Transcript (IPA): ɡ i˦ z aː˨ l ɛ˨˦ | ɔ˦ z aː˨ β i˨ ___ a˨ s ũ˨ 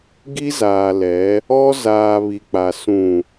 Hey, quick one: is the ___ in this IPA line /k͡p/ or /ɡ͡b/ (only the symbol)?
k͡p